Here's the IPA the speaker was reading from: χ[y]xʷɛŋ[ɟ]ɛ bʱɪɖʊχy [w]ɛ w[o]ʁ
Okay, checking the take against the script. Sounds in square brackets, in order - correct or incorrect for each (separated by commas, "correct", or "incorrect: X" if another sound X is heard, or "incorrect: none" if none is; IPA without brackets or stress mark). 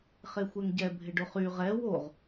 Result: incorrect: e, correct, incorrect: ʁ, correct